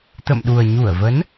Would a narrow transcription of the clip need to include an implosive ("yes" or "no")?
yes